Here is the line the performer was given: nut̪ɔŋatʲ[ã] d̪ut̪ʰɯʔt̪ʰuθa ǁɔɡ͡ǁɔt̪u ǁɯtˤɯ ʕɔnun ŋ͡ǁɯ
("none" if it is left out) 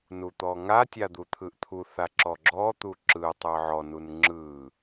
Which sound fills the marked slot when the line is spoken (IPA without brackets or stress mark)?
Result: a